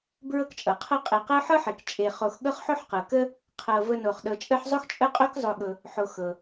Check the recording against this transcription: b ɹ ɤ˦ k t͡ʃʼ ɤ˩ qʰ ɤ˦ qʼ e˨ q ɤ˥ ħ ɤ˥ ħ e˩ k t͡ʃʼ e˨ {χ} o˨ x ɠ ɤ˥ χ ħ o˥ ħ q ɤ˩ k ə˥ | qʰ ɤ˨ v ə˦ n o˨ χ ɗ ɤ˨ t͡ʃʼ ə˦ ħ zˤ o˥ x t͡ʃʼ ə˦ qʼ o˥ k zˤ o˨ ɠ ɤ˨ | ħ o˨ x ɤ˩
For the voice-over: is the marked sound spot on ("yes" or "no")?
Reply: yes